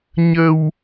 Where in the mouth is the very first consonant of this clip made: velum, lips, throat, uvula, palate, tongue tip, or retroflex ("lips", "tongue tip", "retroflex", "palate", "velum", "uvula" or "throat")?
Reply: palate